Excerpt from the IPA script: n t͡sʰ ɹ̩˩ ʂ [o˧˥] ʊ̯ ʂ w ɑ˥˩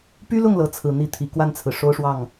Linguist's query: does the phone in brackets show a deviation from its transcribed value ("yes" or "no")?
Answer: yes